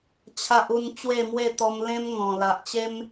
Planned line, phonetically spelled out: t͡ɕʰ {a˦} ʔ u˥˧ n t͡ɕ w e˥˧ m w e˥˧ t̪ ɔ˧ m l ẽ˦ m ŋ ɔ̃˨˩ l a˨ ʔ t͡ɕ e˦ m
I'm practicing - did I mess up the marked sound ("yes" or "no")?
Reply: no